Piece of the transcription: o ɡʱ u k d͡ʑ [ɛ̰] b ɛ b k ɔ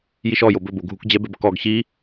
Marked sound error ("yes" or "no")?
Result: yes